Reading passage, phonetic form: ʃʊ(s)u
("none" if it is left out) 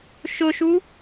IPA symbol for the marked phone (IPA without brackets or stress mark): ʃ